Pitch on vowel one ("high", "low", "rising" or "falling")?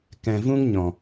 low